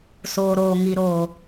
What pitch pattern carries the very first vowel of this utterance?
low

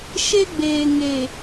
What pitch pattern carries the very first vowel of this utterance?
high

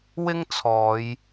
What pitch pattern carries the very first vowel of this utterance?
high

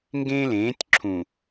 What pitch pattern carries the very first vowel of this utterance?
high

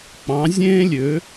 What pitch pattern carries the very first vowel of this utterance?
rising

